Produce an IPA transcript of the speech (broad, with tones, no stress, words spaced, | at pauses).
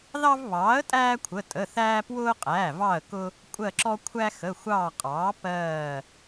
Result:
ðɑ˦vβɑː˩˥ə̯tʼæː˦ kʷʰə˩˧˩tʼə˩˧˩θæː˦ pwʊː˦qʼæː˩˧˩vɑ˦˨ə̯kʊ˦ | kʷʼɜ˦˨ǁɔ˦ kʷʰæ˦xə˩˧˩ xʷɑː˦˨qʼɑː˩˥ pɜː˦˨